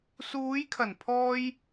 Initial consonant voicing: voiceless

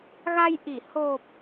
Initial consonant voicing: voiced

